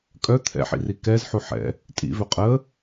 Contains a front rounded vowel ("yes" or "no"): yes